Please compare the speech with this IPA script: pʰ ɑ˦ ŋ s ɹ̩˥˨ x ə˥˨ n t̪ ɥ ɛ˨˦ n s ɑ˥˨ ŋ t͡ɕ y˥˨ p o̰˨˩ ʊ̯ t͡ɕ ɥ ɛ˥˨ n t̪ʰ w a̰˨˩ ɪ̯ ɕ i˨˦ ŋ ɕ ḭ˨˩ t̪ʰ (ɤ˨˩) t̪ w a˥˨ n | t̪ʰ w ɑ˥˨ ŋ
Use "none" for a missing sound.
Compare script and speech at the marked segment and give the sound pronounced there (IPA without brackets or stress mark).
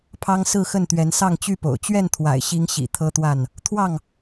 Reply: ɤ˦